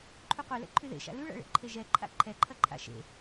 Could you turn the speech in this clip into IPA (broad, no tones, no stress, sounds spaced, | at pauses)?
ǃʰ u qʷ e l ɛ̰ ǃʰ y ð ḛ ʃ a̰ l y ɭ a̰ ɭ ḛ ǃʰ e ʒ ɛ ǃʰ a̰ ǃʰ ɛ ǃʰ ɐ ǃʰ a̰ ʃ ḛ